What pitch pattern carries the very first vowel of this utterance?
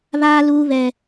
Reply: high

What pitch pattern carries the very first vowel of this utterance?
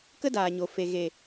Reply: high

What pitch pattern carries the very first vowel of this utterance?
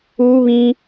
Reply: high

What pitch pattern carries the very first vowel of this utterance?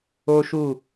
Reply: high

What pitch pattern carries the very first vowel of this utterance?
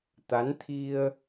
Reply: rising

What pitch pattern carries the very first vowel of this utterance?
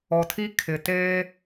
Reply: low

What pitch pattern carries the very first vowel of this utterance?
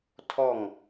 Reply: falling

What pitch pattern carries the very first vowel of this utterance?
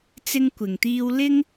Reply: high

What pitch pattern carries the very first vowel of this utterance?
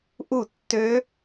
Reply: falling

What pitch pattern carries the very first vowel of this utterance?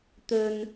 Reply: low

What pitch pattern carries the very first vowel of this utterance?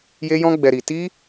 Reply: high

